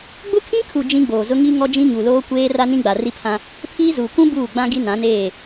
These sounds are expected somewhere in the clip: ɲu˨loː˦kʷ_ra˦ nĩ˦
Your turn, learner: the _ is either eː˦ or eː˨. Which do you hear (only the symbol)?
eː˦